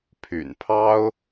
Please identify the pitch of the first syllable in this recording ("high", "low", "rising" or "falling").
low